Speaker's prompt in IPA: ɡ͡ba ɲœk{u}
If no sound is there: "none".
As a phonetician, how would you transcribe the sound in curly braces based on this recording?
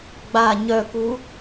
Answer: u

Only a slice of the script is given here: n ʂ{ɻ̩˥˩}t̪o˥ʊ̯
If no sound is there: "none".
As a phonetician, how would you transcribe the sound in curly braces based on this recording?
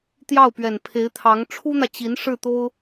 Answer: ɻ̩˥˩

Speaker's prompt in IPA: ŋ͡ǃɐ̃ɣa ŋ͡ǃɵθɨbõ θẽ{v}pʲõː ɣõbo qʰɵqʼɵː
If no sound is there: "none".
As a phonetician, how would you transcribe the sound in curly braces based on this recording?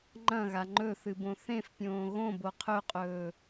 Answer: f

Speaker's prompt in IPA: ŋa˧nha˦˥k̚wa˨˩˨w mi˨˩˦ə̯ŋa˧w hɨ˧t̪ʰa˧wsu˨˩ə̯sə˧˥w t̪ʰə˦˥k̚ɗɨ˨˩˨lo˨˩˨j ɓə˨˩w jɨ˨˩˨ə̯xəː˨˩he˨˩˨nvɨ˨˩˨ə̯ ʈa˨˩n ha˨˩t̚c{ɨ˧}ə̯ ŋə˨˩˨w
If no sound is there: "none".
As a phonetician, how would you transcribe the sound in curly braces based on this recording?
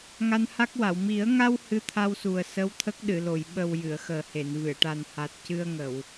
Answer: ɨ˧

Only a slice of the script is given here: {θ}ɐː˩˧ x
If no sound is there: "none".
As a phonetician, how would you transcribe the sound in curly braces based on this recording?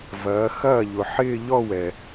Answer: v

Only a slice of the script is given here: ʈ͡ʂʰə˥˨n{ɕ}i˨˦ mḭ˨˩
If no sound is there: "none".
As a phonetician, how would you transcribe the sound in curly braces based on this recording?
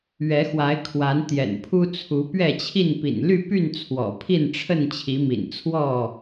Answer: t͡ɕʰ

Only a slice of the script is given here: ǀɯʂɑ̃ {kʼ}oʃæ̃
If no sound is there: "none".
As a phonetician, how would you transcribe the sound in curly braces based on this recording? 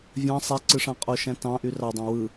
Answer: qʼ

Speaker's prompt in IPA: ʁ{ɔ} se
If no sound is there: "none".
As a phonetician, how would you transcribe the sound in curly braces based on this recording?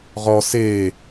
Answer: ɔ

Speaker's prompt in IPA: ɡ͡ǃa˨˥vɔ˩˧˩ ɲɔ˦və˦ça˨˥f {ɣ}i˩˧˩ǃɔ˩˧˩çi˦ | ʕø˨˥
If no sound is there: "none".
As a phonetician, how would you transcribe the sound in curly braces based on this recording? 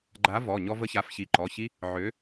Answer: ç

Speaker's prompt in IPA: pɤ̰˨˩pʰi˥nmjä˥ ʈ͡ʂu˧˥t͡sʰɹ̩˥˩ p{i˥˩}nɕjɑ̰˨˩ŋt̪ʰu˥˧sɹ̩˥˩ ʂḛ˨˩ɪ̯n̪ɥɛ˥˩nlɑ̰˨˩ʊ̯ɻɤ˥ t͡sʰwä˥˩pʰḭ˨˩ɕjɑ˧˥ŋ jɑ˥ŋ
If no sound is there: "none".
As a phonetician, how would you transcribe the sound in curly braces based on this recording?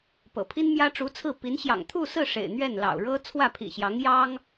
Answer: i˧˥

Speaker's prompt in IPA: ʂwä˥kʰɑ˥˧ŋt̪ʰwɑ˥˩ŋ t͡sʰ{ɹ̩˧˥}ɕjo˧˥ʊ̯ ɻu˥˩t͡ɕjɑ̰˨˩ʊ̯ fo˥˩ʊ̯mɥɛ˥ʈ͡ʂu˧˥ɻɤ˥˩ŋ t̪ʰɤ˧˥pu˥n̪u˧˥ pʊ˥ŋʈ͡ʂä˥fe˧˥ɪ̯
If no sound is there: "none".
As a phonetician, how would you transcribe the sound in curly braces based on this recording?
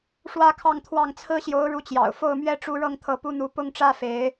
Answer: ɹ̩˥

